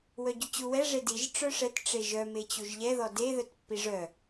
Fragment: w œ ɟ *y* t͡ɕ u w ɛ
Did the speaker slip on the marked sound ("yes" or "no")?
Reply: no